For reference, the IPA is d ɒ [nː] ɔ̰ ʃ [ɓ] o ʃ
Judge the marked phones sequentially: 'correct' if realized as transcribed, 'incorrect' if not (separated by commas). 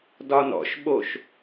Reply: incorrect, correct